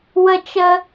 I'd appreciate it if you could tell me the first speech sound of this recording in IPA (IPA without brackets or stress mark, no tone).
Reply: w